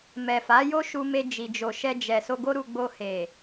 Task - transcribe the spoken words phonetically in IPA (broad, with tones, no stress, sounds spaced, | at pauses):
m ɛ˨ f a˨˦ j o˦ ʃ u˧ m e˧ d͡ʒ i˨ d͡ʒ o˨ ʃ ɛ˧ d͡ʒ ɛ˨ s o˧ ɡ o˦ ɾ u˧ ɡ͡b o˧ h e˨